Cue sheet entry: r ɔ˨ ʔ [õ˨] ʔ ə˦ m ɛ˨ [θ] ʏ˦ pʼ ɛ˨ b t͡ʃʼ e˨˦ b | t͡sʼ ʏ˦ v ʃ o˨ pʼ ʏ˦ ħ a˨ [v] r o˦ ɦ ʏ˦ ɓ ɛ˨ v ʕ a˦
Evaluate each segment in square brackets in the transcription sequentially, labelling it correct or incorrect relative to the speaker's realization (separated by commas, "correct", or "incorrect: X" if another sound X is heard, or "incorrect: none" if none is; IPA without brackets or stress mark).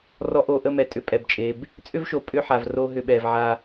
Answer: incorrect: o˨, incorrect: tʼ, correct